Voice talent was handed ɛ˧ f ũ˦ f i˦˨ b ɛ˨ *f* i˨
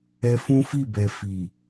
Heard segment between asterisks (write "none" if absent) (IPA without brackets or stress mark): f